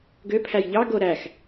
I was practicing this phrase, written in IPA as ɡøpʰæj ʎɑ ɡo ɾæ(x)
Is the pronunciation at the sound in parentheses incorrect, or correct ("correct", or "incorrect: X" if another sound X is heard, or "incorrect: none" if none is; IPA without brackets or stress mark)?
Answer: correct